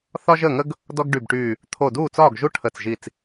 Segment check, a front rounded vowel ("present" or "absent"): present